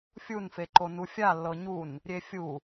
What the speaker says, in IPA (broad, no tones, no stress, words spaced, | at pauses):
fʲunfeǃo nufʲalːɤ ɲun | ɾʲefʲu